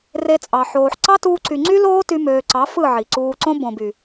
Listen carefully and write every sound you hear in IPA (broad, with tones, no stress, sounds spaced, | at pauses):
r e˧ t͡sʼ ɑ˨ ħ oː˨ ħ ǀ ɑ˦ t uː˧ ǀ y˨ ŋ͡ǀ y˦ l oː˦ t y˧ m øː˨ ǀ ɑ˨˦ f ɯ˦˨ ʕ i˨ ǀ uː˧ ǀ õ˦ b õ˨ b y˨